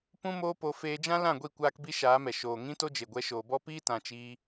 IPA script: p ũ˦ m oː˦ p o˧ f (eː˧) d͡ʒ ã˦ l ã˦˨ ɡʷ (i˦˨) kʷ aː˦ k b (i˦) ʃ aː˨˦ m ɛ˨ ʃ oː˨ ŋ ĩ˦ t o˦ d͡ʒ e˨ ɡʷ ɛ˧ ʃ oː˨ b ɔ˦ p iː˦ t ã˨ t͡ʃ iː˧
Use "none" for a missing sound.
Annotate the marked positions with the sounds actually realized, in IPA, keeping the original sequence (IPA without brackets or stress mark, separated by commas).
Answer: eː˧, i˦˨, i˦